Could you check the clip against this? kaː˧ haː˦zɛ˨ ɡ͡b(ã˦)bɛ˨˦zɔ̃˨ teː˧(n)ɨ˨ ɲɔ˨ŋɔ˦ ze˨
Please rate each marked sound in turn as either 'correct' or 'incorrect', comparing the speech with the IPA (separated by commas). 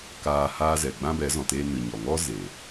correct, correct